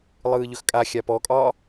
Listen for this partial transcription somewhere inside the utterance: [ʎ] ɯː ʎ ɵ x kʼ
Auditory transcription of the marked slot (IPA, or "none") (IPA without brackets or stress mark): lˠ